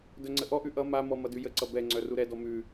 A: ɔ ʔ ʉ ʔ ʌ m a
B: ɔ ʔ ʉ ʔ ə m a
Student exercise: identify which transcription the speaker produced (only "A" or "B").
A